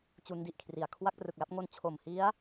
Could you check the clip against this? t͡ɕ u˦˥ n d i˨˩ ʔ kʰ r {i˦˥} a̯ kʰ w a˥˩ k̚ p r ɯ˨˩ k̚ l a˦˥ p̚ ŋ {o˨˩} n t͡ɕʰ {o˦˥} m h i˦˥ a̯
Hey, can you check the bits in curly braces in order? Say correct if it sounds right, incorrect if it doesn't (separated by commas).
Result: incorrect, incorrect, incorrect